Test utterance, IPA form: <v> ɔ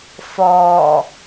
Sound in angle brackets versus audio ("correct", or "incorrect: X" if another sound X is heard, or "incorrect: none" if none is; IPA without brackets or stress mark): incorrect: f